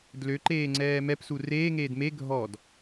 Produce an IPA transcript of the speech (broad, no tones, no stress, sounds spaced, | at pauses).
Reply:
d l ø ǃ eː ŋ͡ǀ ɛː m ɛ p s u r eː ŋ eː d m e ɡʱ ɔ d